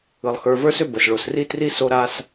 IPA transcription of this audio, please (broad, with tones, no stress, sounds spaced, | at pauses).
ɯ˩ lˠ x ə˞˨ v ə˞˥ s ʏ˥ b ə˩ s ɭ o˩ s r i˥ t r i˥ s o˦ ɾ a˦ s